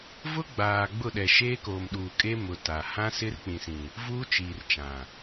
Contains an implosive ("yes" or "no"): yes